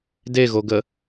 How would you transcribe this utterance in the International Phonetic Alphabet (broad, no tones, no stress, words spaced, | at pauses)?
deɣoɡə